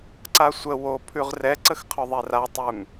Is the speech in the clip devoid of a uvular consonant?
no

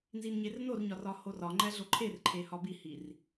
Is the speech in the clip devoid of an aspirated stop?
no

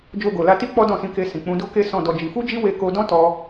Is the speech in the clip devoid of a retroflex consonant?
yes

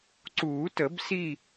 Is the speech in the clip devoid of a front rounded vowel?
yes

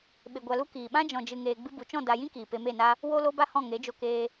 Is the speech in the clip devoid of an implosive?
no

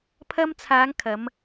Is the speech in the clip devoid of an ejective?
yes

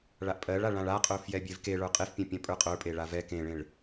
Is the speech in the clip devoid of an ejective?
no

